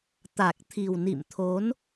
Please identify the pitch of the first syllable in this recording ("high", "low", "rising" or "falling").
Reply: low